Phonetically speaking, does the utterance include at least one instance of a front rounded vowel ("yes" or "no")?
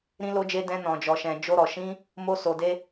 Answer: no